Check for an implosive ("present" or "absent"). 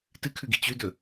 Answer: absent